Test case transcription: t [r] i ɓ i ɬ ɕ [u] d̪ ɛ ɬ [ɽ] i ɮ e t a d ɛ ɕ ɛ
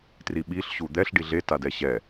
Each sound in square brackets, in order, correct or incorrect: correct, correct, incorrect

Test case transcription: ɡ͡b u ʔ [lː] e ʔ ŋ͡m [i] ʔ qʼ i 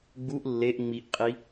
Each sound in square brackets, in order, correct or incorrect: correct, correct

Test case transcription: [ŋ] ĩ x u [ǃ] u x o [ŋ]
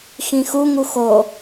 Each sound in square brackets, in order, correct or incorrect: incorrect, incorrect, incorrect

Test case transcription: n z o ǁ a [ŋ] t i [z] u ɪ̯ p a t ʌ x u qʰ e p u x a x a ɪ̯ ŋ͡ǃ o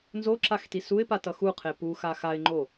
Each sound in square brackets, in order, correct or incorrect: incorrect, incorrect

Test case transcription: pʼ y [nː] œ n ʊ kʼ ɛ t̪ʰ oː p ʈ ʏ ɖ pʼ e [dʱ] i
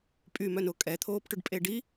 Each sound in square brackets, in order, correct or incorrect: incorrect, incorrect

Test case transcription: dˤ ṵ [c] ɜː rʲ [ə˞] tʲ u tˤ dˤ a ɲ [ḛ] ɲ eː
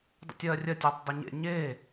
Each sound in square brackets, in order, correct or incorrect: incorrect, incorrect, correct

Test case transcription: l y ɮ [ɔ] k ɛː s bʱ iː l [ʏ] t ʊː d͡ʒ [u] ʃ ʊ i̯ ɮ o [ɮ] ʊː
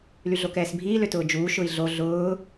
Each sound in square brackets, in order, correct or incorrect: incorrect, correct, incorrect, correct

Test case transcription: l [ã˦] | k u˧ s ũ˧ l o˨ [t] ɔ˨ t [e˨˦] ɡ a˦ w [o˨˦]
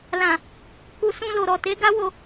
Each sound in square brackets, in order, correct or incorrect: incorrect, incorrect, correct, incorrect

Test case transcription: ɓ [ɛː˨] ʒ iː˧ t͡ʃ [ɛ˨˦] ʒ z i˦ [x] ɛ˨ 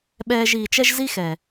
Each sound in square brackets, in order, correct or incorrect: incorrect, incorrect, correct

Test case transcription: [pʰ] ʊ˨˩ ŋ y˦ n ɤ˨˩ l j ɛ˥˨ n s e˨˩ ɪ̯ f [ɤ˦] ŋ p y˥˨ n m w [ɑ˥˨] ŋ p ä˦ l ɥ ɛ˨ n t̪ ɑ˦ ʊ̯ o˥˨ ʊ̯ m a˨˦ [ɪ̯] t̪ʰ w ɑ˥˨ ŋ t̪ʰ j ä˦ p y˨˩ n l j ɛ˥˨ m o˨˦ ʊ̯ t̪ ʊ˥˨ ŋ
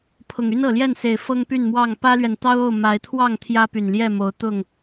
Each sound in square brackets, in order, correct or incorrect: correct, correct, correct, correct

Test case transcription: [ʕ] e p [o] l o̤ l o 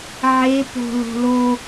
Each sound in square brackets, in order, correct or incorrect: correct, incorrect

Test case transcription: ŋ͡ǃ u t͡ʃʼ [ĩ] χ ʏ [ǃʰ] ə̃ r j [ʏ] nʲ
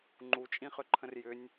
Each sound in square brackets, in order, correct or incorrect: correct, correct, correct

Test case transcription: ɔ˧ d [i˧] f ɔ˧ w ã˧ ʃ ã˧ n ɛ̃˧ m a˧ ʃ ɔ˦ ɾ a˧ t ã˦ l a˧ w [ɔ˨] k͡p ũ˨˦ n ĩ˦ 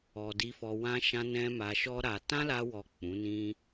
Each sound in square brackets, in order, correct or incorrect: incorrect, correct

